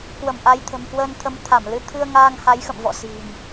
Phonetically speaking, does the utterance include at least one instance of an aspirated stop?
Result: yes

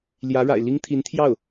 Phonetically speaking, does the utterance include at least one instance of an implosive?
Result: no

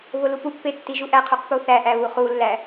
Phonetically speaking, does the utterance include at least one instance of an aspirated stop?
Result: yes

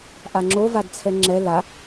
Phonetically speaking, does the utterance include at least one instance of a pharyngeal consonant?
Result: no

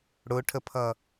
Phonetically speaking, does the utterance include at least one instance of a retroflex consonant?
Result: yes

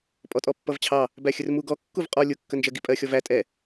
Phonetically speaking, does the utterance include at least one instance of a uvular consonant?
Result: yes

